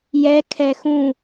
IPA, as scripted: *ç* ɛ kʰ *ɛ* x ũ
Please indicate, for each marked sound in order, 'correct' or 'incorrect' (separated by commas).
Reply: incorrect, correct